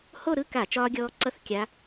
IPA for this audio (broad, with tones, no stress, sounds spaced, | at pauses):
h o˥˧ ɾ ɯ˥˧ k a˧˩˧ t͡ʃ ɒː˦˥ ɡʲ ɔː˦˥ ǀ ʌ˥˩ θ kʲ a˨˦